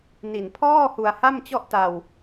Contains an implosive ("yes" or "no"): no